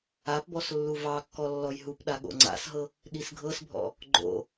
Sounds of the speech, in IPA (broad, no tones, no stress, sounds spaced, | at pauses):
a p b ɔ s lː u v ɑ kː ɔ lː ɔ j ɦ u p ɗ a ɠ o̰ ŋ͡ǀ a̰ s ɦ ɤ | ɗ i s ɡʱ ɤ s bʱ ɔ̰ | ɡ͡ǃ o̰